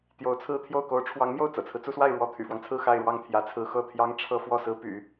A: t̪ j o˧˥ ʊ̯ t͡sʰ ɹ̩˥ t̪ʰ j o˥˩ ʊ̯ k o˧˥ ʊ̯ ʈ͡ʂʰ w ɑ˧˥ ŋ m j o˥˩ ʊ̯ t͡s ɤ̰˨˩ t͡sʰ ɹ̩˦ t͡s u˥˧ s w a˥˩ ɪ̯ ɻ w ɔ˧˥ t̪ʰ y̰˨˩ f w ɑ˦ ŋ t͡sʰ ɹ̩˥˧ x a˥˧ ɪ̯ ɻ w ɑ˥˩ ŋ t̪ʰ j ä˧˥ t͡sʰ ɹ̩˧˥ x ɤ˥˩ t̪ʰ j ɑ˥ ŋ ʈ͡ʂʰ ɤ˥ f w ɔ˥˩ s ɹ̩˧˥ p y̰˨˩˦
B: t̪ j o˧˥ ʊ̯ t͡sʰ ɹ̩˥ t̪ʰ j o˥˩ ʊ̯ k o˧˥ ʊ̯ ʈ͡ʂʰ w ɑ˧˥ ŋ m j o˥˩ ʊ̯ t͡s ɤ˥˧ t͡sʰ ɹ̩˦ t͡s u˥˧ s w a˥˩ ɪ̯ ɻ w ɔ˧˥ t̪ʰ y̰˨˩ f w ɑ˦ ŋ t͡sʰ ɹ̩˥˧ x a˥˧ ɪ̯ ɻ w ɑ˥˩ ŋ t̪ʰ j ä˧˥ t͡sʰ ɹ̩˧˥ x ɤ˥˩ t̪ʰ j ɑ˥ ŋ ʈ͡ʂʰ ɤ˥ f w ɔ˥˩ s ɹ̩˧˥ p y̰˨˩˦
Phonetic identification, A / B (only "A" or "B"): A